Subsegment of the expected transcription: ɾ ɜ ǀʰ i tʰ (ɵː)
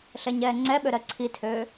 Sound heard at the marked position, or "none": øː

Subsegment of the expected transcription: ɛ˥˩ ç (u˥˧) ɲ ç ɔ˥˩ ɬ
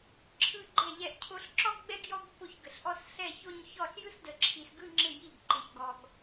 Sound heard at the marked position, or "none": o˥˧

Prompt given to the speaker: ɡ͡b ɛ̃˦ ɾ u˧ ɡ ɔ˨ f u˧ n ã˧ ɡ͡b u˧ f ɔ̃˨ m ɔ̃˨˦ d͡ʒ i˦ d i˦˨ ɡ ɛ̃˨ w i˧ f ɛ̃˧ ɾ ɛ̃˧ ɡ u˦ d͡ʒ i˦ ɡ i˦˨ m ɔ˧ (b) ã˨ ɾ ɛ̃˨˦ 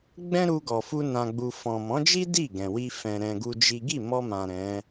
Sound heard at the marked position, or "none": m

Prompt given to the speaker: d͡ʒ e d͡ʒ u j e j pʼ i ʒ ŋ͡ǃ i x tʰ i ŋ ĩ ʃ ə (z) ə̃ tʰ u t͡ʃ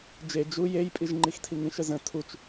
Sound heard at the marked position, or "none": z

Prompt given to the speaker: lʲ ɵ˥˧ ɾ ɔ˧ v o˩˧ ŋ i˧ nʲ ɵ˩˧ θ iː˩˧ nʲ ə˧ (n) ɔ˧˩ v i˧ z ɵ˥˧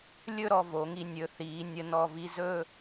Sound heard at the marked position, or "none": n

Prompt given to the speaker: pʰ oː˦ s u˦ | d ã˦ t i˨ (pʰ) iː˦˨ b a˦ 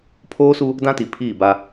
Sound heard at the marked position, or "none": pʰ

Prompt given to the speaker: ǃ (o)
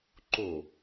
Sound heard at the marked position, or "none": o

